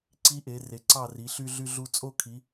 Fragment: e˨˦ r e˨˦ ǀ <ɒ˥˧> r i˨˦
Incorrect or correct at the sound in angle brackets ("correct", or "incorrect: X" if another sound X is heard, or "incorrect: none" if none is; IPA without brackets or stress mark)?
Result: incorrect: ɑ˥˧